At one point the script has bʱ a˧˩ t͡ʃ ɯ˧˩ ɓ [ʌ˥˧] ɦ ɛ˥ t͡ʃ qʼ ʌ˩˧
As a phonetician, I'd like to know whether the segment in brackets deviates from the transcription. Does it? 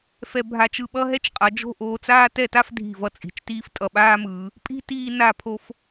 yes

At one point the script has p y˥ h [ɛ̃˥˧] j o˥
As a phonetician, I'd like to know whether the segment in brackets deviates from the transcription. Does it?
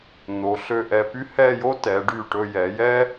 yes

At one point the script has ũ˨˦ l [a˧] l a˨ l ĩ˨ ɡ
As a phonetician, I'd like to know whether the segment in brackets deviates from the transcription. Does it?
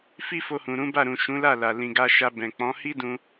yes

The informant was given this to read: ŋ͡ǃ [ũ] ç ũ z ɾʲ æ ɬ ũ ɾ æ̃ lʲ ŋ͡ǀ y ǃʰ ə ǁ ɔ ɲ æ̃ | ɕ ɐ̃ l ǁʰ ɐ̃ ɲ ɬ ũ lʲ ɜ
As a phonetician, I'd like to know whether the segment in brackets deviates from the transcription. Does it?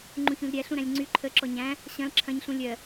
no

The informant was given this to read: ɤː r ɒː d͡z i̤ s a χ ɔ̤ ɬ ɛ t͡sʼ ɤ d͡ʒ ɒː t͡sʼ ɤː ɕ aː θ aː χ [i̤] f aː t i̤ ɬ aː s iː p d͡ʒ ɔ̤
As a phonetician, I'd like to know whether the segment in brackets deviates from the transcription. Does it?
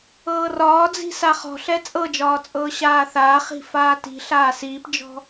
no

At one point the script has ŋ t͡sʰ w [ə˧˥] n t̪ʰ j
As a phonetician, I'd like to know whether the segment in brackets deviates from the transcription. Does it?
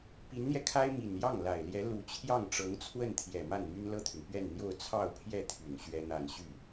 yes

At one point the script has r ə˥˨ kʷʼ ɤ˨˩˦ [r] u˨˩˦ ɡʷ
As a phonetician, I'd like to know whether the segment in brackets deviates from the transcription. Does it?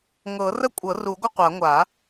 no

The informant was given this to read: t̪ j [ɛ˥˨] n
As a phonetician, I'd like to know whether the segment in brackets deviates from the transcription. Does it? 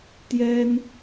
yes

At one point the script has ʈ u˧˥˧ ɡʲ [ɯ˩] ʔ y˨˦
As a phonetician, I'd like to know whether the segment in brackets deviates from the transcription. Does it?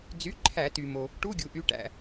yes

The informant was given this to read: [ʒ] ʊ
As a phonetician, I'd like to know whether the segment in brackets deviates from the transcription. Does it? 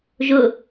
no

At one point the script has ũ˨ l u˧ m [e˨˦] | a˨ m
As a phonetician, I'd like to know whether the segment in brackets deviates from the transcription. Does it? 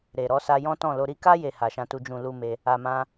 yes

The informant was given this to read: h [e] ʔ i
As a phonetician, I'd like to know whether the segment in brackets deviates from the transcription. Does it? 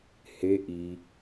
no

